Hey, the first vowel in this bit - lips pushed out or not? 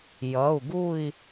no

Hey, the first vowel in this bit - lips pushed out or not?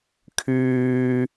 yes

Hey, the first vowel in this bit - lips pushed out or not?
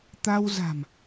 no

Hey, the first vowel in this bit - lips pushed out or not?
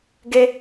no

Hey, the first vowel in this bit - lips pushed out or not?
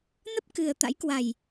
no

